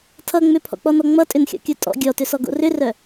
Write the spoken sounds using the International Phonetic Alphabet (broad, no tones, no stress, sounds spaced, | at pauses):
tʰ ʌ ŋ͡m ʏ pʰ ɔ̰ k͡p ɔ n ɔ ŋ͡m ʌ tʼ ʏ n xʲ ɔ̰ kʲ o tʼ ɔ̰ ɡʲ ɔ t ʏ s ɔ ɡ o̰ r ʏ r œ